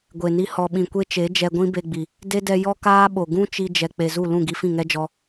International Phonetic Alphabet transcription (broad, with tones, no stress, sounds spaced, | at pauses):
ɡʷ e˨ n i˧ h ɔ˨ ɓ ĩ˨ kʷ e˦ t͡ʃ e˨˦ d͡ʒ ɛ˧ ɡʷ ĩ˦ b e˧ ɡ͡b i˨ | d e˦ d ɛ˧ j ɔ˦ k aː˦ ɓ o˨ ɡ ũ˦ t͡ʃ i˧ d͡ʒ ɛ˨ k͡p e˨ z u˦˨ l ũ˦˨ ɡ i˧ f ĩ˦˨ ŋ ɛ˦ d͡ʒ ɔ˧